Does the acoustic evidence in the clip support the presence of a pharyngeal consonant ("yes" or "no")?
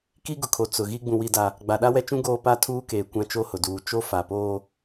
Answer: no